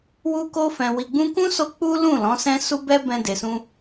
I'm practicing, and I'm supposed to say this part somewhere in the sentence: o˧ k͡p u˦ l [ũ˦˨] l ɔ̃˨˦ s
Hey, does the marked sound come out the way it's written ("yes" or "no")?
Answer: yes